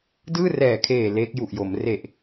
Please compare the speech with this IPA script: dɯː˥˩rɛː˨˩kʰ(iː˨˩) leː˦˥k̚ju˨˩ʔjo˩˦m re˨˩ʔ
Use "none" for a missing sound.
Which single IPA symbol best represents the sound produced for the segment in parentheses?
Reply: eː˨˩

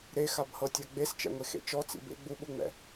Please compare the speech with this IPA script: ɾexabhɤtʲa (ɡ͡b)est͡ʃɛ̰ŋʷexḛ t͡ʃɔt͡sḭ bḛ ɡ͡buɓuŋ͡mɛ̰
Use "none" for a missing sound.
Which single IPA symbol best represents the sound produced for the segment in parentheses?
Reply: ɡ͡b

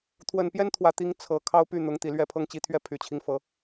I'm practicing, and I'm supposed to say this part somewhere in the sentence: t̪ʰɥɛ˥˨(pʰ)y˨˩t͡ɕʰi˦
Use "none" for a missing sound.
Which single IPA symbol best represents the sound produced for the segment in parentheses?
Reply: pʰ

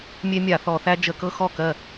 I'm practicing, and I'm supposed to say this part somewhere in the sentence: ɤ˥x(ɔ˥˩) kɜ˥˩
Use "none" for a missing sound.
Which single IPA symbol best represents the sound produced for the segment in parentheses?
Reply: ɔ˥˩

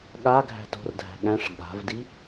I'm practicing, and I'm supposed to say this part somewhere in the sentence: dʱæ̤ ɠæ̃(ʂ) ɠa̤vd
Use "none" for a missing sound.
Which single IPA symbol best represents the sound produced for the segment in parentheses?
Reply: ʂ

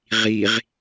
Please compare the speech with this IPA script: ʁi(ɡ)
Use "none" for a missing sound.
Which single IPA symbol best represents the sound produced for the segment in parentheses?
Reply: ʁ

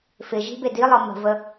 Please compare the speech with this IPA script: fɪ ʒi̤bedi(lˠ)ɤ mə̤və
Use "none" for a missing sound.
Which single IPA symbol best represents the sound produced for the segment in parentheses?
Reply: lˠ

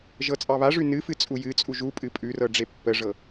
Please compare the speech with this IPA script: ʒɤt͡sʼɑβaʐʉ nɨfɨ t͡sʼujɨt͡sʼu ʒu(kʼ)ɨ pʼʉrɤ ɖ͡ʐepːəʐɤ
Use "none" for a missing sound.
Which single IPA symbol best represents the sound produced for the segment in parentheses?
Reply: pʼ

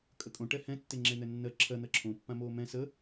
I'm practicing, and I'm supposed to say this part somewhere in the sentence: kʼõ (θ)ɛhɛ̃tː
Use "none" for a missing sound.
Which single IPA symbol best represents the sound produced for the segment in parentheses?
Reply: ʈ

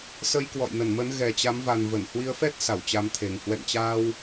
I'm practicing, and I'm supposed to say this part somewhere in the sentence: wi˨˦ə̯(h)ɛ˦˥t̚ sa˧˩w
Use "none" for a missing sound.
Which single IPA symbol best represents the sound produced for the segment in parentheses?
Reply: f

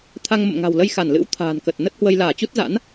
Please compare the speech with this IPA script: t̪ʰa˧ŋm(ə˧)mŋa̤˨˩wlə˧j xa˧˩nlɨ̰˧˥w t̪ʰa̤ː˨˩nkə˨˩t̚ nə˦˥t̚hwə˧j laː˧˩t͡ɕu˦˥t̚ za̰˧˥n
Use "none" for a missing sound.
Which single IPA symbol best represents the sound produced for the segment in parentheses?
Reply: ə̰˧˨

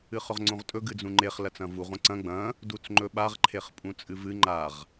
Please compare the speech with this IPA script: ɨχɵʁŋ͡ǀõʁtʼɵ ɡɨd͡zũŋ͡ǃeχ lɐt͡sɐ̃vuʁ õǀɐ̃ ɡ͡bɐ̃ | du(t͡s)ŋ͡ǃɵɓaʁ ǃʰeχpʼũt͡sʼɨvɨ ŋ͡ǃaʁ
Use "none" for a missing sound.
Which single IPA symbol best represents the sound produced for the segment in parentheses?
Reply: t͡s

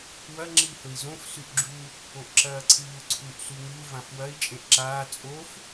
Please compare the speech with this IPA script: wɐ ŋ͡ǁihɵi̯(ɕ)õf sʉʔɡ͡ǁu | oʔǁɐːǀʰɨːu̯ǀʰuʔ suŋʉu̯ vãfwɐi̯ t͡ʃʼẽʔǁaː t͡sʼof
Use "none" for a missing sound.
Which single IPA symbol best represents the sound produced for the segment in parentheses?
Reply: z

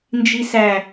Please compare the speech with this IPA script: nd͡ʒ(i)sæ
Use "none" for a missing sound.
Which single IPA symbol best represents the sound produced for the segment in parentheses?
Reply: i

